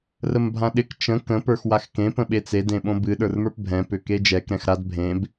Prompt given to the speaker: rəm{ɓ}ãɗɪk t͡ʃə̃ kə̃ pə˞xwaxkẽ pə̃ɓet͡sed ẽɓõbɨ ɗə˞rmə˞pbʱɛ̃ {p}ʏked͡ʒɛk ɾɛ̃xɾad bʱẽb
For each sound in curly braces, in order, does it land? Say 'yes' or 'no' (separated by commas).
no, yes